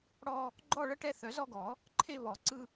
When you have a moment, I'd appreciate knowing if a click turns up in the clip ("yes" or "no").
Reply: yes